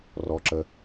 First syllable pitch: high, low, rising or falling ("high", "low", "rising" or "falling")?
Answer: low